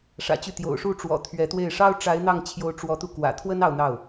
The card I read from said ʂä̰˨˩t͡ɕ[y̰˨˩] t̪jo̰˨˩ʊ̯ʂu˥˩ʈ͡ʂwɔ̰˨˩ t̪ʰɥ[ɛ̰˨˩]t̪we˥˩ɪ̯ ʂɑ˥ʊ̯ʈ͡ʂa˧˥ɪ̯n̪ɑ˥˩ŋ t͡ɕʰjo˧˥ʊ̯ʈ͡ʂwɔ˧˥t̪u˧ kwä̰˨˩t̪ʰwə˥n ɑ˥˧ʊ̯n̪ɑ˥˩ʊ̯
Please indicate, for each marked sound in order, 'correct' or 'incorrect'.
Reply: incorrect: y˥˩, incorrect: ɛ˧˥

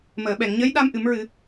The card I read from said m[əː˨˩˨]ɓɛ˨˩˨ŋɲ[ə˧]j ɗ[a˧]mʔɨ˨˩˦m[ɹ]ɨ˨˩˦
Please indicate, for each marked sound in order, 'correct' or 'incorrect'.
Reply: correct, incorrect: ə˧˥, correct, correct

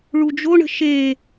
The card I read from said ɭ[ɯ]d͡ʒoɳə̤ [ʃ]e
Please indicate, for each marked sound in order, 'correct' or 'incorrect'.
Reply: incorrect: u, correct

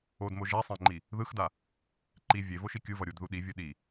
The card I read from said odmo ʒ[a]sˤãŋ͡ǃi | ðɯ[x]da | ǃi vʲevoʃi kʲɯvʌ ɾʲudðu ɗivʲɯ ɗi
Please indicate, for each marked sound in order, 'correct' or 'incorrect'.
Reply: correct, correct

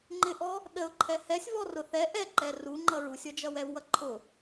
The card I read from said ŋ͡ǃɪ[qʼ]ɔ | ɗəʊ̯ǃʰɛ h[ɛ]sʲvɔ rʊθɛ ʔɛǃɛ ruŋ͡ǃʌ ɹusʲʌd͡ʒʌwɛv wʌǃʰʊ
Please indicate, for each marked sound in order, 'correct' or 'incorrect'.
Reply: incorrect: ʔ, correct

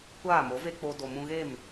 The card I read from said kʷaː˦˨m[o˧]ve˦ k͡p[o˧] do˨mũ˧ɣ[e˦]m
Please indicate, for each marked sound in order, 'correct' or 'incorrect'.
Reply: incorrect: o˨˦, correct, incorrect: e˦˨

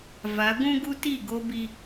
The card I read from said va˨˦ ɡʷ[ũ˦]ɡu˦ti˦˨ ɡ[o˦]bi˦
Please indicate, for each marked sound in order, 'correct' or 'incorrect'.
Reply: correct, correct

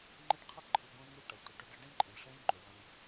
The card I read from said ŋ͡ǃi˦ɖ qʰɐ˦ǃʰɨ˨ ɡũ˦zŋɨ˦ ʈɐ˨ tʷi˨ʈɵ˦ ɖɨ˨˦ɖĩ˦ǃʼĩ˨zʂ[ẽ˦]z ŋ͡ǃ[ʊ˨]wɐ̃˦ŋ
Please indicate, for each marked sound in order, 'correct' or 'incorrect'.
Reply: correct, incorrect: ɵ˨

